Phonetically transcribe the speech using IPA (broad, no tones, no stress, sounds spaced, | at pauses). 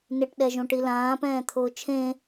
n ɪ ʈ ɗ ɛ ʒ õ ʈ i l ãː p ɛ̃ː t̪ʰ ʊː t͡ʃʰ ẽ